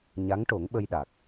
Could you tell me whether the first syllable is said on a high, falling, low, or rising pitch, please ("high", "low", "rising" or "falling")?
rising